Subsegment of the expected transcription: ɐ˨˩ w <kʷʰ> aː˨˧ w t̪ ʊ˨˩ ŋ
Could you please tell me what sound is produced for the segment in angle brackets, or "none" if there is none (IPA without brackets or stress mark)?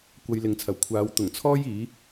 kʷʰ